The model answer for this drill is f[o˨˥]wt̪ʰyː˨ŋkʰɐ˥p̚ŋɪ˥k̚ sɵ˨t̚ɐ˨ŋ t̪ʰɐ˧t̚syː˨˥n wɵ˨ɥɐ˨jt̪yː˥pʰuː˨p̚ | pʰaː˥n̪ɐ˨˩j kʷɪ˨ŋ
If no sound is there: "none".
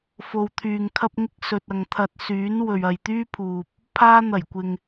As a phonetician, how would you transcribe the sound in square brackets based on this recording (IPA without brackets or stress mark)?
o˨